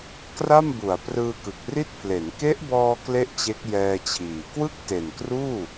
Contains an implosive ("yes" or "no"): no